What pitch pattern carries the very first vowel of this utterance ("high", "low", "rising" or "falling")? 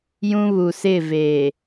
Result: high